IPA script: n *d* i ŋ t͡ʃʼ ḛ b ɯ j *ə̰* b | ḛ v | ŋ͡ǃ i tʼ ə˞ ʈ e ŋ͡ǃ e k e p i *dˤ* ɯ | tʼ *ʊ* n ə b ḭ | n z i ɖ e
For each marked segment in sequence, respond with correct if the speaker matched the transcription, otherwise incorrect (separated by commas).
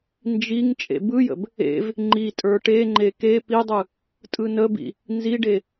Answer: incorrect, correct, correct, incorrect